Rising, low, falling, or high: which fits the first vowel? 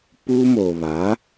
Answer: high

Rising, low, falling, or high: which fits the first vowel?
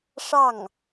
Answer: falling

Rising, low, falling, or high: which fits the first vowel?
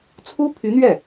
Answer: high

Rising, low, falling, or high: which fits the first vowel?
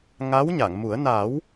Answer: rising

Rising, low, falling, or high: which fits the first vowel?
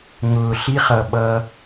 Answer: low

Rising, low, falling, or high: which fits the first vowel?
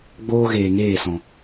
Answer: high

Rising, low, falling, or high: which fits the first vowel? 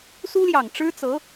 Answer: high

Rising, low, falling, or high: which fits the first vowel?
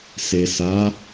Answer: low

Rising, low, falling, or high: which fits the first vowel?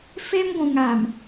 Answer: high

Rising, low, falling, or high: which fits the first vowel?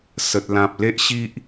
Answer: low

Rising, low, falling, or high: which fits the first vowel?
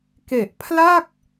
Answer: low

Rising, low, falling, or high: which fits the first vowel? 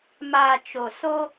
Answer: low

